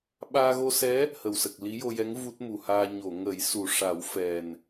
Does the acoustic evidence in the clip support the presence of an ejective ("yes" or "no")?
no